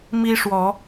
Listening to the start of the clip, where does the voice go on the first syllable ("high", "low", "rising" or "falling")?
high